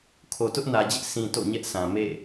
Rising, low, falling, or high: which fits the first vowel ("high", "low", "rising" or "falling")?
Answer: low